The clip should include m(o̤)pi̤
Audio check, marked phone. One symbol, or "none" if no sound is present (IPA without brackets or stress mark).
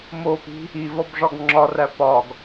o